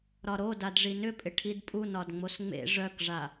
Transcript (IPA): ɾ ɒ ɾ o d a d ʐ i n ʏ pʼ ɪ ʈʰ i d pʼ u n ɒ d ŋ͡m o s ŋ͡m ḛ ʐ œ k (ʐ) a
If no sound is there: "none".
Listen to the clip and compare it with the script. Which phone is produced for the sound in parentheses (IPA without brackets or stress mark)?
ʐ